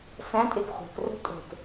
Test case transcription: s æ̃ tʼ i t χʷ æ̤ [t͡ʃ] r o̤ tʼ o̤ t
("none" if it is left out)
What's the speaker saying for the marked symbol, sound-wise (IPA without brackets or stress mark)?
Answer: t